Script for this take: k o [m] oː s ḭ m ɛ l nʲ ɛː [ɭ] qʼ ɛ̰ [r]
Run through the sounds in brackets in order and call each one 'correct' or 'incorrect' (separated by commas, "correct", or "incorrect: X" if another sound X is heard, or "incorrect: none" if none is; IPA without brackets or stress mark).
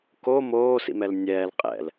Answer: correct, incorrect: l, incorrect: l